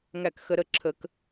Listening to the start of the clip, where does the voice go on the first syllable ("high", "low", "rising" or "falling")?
falling